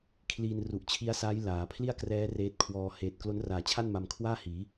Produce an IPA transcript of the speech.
kʰliː˧nru˨˩ʔt͡ɕʰi˦˥a̯saː˦˥j laː˩˦pʰli˥˩a̯krɛː˦˥ reː˦˥t̚kʰwɔː˧ heː˨˩t̚klo˦˥nraː˨˩t͡ɕʰa˥˩n ma˧m kʰwaː˥˩hiː˩˦

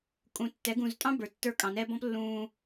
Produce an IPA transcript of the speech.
kʼũ˨tːɛ˨˦ ɡũ˨ztʼɑ̃˦ bə˞˨tːə˞˦˨kʼɑ̃˨nɛ˦ bɔ̃˦plːũː˨

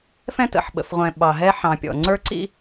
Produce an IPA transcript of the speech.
fɛ̃˦tə̰˨ħ ɓə̰˨fʁʷɛ̃˨ ɓɑ˨ɦɛ˦ ħɑ̃˨pʲɔ̰˨ ŋ͡ǀə˞˦ǀḭ˦

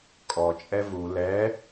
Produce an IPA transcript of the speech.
kʼɔt͡ʃʼɛ vu lɛ

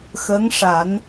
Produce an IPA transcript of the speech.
xə˧˥ŋʂa˨˩˦n

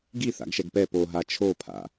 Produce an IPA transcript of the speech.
ɡi θa̰ɡʃɛɡpɛ poɦa t͡ʃʰopʰa̰

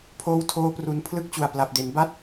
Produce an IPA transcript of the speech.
pʰoː˦˥wtʰoː˦˥pru˨˩n pʰlɯ˥˩k̚t͡ɕu˨˩a̯pla˨˩p̚de˩˦n ba˥˩t̚

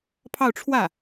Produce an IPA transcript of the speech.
pʰɑ˥˧ʊ̯ʈ͡ʂʰwä˥˩

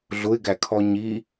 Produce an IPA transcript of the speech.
ɮʊɪ̯ɡækʰɔ ɲi

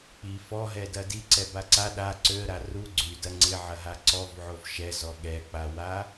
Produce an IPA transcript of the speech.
k͡pi fɔɦɛdɐ diǀɛba ǀa ɗa ǀøə̯ɾa ru ɡ͡ǀydɐ ŋ͡ǀɪʕɐɦa ǀɔvʕov ʃɛzɔ ɠɛk͡pawa

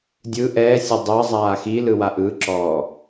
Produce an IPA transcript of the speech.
dʲɯ ʔɛːsʲɛ dˤɤzˤaː xilɯ waʔɯǁɔː

